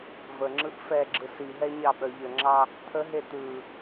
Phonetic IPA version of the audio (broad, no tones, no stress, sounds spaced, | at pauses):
v ə ŋ͡ǁ ɯ ʔ f ɛ ɡ͡ǁ ɯ s i ɦ ɛ ɲ ɑ ɓ œ ʎ ə ŋ͡ǁ ɑ | t̪ʰ ə ɦ e t̪ ɯ